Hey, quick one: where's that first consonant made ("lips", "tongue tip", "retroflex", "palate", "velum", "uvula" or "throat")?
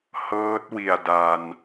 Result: throat